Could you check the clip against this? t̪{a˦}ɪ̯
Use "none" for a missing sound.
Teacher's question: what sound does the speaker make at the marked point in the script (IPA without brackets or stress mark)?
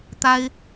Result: a˦